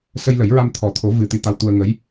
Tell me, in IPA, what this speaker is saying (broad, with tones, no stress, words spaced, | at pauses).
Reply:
sə˧jlə˨˩˦jɹa˧m t̪ʰɔ˨˩t̪ʰo˨˩˦ vɨ˨˩ t̪i˧t̪a˧wt̪u˧ə̯ŋə˧˥j